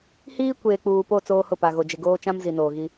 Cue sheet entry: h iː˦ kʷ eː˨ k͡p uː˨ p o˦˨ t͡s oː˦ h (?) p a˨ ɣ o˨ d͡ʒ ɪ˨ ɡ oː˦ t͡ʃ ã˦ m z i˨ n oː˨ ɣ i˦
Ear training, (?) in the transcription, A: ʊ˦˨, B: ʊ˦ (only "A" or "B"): A